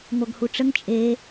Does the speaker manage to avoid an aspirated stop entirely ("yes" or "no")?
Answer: yes